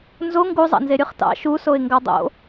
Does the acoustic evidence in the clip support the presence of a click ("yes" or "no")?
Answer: no